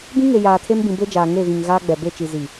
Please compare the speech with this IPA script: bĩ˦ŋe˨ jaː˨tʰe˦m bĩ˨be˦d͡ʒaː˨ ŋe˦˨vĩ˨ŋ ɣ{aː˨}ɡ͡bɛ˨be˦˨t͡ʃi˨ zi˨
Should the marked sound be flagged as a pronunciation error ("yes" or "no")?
yes